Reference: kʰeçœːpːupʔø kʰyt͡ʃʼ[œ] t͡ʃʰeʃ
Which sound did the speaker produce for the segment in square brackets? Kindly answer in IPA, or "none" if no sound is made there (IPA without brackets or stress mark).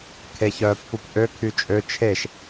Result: ø